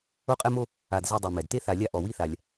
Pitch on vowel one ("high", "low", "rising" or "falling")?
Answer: high